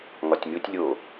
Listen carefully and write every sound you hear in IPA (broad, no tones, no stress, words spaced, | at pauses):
ŋɒtʲmʲotʲlʲo